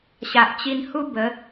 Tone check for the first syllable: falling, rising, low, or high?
low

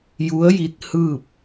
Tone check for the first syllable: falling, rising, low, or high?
rising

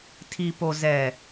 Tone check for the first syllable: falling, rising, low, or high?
low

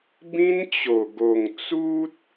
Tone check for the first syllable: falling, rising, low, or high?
high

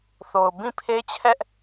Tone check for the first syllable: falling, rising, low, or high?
low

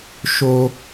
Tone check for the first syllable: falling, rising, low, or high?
high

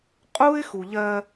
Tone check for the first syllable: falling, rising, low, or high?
high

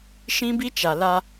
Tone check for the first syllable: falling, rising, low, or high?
high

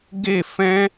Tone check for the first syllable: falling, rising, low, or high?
falling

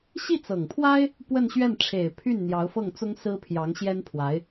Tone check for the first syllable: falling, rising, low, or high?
falling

